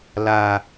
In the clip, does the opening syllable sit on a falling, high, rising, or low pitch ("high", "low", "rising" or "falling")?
low